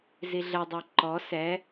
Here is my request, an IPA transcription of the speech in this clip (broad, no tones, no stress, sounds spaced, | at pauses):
z i ɮ ə dˤ i ǃ ɔ s ɛ